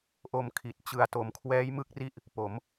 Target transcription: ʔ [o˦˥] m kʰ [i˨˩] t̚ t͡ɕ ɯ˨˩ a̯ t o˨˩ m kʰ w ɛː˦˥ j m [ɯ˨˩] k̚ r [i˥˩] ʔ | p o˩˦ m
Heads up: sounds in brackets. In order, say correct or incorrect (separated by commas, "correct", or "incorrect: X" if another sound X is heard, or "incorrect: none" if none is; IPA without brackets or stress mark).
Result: incorrect: o˧, correct, incorrect: ɯ˦˥, incorrect: i˦˥